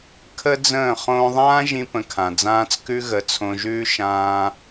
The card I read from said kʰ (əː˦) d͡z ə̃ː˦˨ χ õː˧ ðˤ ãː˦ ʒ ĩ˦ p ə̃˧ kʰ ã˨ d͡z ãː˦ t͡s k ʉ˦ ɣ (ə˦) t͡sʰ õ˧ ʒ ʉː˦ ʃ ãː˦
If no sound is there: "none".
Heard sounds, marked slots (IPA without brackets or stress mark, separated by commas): ə˦, ə˨˦